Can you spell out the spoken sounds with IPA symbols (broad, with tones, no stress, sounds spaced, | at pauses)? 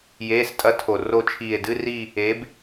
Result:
j eː˧˥˧ s tʼ ɐ˦˥ tʰ o˨˩ r o˦˨ t͡ʃʰ iː˨˩ e̯ d ɨ˧˥˧ r i˦˨ | e˨˥ b